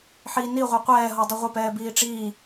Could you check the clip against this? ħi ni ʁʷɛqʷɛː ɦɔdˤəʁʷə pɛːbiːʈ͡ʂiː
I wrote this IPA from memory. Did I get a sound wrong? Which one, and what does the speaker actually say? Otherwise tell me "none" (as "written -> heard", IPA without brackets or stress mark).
none